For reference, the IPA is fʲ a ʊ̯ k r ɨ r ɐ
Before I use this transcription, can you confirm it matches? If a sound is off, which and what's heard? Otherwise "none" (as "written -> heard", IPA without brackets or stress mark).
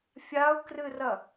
none